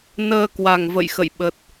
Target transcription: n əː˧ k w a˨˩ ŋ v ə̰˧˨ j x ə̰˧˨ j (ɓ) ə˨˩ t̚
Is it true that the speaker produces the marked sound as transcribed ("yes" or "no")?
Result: yes